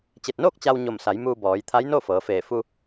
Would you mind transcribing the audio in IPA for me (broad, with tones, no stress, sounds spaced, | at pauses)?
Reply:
t͡ɕ e˧˩ t̚ n oː˥˨ k̚ t͡ɕ a˧ w ɲ o˧˩ m s a˩˧ j m uː˧ b ɔː˩˧ j t̪ʰ a˧˥ j n o˥˨ f ɤː˩˧ f eː˧˩ f u˧